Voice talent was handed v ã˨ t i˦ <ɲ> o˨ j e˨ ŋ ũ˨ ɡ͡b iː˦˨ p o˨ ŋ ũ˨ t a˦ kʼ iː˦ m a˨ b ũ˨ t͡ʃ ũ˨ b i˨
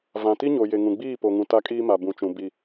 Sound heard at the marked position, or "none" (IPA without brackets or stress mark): ɲ